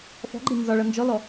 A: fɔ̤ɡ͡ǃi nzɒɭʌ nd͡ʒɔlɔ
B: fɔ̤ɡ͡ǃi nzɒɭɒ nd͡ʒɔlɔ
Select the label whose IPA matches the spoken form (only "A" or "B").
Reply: A